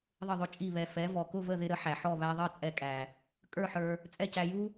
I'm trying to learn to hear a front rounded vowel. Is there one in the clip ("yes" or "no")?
no